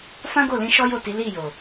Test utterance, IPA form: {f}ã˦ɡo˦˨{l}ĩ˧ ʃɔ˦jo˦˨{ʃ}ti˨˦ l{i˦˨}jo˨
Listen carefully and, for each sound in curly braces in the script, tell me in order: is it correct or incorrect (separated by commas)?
correct, correct, incorrect, correct